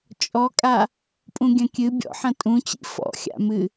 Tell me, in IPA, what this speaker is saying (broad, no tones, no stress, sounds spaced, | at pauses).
t͡ʃʼ ɔ kʼ a | pʼ ũ ɡʲ ɐ̃ kʲ ɨ bʲ ɔ̰ ħ ɐ̃ tʼ ũ t͡ɕ ḭ f ɔ̰ xʲ a̰ m ɨ